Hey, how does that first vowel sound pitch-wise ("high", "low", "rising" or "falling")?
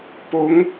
rising